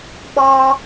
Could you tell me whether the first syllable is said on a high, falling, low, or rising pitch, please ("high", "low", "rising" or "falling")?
high